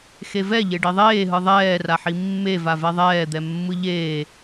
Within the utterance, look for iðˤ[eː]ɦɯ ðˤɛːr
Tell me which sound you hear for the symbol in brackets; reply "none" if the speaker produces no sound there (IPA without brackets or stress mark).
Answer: eː